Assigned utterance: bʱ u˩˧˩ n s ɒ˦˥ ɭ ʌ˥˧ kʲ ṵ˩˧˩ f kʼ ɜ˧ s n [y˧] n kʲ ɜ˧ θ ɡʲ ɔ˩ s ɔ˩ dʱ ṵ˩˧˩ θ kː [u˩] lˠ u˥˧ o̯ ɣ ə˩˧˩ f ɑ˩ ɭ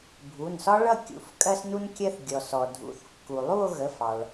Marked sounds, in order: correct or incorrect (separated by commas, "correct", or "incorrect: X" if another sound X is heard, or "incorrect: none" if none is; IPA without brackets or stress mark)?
incorrect: u˧, correct